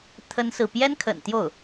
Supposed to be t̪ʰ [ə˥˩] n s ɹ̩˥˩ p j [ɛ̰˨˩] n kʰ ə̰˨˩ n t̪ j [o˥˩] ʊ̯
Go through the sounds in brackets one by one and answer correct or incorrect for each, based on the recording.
incorrect, incorrect, correct

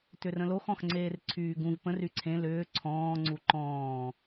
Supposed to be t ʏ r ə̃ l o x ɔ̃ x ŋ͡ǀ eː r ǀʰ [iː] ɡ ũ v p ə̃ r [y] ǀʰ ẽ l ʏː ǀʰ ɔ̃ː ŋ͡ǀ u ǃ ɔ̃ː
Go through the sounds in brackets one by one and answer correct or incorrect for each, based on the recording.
incorrect, correct

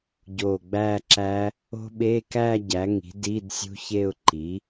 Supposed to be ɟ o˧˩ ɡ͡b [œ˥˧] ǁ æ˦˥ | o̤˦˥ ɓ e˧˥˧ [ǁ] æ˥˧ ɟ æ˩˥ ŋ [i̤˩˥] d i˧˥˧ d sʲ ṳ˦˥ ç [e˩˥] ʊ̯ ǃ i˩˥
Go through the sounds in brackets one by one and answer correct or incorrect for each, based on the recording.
incorrect, incorrect, correct, incorrect

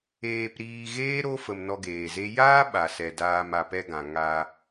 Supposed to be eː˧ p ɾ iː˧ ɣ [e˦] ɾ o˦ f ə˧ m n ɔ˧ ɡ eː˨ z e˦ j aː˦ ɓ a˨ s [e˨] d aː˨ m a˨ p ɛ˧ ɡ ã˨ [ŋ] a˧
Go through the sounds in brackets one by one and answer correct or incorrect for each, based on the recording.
incorrect, incorrect, correct

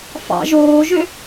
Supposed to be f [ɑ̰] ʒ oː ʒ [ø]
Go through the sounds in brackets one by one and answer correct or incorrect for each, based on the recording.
correct, correct

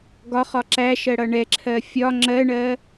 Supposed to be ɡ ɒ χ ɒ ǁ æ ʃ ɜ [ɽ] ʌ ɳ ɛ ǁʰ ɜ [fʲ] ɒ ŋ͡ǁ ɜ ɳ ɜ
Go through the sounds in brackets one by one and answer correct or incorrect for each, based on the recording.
correct, correct

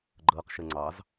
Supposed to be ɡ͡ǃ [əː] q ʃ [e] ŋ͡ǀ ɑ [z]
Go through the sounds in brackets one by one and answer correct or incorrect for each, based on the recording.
correct, incorrect, correct

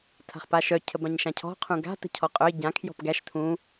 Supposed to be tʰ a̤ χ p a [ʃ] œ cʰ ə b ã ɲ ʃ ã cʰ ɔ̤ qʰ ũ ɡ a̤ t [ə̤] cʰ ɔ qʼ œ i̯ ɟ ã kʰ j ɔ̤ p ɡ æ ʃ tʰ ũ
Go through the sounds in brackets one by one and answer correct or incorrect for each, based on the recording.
correct, correct

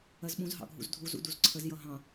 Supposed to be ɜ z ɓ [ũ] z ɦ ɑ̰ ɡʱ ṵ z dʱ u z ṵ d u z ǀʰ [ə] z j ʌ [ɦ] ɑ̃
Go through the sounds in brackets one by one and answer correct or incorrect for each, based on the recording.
correct, correct, correct

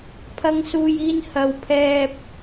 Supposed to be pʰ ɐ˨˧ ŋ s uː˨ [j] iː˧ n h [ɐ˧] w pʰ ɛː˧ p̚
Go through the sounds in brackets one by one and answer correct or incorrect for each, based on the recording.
correct, incorrect

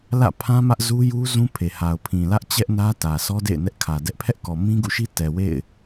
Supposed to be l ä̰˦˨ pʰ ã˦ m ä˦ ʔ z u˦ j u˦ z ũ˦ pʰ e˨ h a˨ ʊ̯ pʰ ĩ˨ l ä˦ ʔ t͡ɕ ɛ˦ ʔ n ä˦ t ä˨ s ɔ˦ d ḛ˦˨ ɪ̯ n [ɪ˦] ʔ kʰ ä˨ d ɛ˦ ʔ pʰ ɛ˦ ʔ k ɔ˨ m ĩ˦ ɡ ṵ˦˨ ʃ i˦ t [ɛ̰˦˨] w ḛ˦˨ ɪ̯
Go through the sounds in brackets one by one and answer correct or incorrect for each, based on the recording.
incorrect, incorrect

